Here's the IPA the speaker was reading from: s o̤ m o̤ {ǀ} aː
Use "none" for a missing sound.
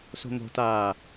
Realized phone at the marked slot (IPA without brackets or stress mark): t